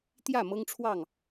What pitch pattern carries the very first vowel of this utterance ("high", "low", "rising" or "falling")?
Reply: falling